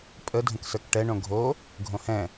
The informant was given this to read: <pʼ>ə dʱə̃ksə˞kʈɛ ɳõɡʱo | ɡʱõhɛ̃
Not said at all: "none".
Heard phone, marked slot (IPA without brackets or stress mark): pʼ